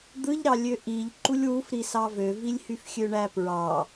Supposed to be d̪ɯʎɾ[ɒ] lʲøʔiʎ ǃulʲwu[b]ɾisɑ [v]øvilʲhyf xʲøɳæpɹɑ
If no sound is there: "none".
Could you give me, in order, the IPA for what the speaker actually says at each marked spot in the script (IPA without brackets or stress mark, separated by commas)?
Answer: ɑ, f, v